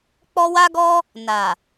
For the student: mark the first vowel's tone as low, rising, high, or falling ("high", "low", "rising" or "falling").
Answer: high